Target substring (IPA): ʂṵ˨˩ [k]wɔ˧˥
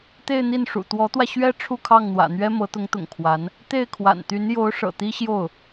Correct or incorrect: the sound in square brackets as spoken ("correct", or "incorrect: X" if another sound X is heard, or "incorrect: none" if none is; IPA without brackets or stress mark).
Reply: incorrect: t̪